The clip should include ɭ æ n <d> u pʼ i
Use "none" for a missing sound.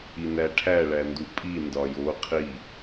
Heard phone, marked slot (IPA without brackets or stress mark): d